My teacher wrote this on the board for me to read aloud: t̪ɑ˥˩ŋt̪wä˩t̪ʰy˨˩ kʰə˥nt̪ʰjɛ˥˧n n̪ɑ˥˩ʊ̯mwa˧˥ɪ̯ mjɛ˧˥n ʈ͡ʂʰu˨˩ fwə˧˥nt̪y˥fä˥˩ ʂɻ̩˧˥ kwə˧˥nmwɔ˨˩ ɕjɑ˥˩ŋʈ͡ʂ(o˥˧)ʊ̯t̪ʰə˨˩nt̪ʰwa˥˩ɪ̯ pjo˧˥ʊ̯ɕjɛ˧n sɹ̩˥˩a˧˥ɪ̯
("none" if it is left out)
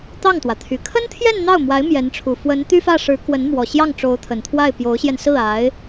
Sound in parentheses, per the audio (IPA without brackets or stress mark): o˧˥